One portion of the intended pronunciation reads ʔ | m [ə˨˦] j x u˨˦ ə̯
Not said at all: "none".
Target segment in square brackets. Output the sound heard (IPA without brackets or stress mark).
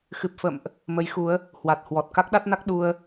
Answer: ə˨˦